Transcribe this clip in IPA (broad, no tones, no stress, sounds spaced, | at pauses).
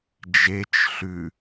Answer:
d͡ʒ e t͡ʃ ɬ ʉ